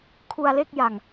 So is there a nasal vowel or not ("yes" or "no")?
no